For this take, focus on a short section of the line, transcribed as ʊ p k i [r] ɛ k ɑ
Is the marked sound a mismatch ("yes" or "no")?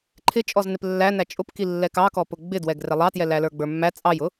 yes